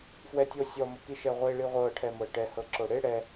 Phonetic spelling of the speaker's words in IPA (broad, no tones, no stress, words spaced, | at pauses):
fwɛtʲosʲɔ mokiʃɛʁʷe ɭiʁʷɤ ʈʰɛmɤʈɛ hɤǁoɽe ɽɛ